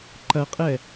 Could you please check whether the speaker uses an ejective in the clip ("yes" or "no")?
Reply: yes